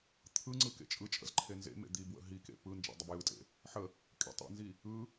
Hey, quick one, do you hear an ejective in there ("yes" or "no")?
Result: yes